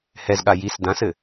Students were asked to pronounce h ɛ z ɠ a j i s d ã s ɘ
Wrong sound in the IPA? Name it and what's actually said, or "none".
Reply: none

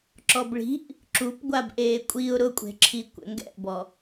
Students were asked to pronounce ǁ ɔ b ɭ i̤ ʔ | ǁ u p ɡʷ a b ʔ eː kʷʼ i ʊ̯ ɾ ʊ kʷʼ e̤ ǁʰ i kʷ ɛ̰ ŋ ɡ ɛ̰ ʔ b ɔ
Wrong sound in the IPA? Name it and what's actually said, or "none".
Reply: none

